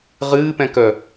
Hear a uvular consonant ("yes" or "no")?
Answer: yes